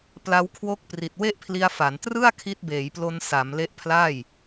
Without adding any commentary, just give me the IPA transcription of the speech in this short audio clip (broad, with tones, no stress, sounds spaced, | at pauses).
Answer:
p l a˧ w kʰ w o˦˥ k̚ p r i˨˩ t̚ w e˥˩ ʔ pʰ l i˧ a̯ f a˩˦ n t r ɯ˥˩ a̯ kʰ i˦˥ t̚ b eː˩˦ j p l o˧ n s a˩˦ m l e˦˥ ʔ pʰ l a˥˩ j